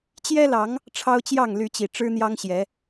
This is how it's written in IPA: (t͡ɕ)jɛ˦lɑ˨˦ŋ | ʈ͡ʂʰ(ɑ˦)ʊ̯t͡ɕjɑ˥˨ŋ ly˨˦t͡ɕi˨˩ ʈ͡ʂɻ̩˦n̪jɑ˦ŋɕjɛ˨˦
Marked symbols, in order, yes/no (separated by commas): yes, yes